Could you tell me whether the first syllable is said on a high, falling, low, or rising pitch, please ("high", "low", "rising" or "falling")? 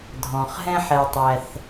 low